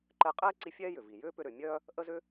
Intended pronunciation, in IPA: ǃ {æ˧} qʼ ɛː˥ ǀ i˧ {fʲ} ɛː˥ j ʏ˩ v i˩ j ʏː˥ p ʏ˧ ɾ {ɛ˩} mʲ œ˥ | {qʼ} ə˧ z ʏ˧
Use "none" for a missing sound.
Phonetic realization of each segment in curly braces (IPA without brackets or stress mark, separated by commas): ɛ˧, fʲ, ʏ˩, ʔ